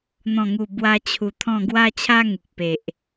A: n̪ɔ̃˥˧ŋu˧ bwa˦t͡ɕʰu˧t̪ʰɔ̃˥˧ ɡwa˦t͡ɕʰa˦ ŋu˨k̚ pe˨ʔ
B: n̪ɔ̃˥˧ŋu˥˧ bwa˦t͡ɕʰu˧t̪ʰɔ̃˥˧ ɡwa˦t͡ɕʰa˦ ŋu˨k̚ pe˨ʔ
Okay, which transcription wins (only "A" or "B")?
B